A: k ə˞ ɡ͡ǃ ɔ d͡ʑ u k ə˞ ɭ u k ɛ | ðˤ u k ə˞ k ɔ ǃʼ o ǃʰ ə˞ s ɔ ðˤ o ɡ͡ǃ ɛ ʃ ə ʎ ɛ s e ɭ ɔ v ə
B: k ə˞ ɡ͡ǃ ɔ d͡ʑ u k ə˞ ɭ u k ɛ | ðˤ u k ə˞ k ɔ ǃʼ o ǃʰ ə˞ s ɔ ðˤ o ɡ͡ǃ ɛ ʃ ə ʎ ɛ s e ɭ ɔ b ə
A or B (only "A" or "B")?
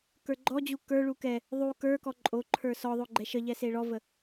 A